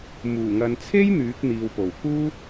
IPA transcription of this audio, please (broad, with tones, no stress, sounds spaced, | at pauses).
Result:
m uː˨˩ ŋ ɐ˨ n t͡sʰ e˥ j n̪ yː˨˥ k̚ n̪ iː˨ w p o˨˩ w k uː˥